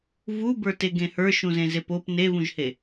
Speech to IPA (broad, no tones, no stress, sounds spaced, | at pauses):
v u b ə˞ t e ɡ ẽ h ə˞ ʃ ũ z ẽ z e p o p n e v ũ ʒ h e